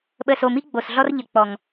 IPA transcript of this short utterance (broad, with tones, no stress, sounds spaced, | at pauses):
ɓ ə˨ s o˨ m i˦ ɡ͡b o˨ s ɮ ɔ˦ r ʎ ə˨ k͡p ɔ˨ ŋ